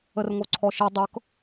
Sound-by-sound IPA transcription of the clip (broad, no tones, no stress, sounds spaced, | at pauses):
ə r ŋ o ǀʰ ɔ ʃ i dˤ ɤ k